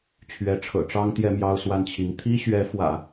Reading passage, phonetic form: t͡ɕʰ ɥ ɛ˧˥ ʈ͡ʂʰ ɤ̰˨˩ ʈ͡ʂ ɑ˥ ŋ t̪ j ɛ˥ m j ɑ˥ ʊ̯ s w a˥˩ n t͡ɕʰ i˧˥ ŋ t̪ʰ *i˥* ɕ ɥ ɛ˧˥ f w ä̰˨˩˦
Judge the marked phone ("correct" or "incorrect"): correct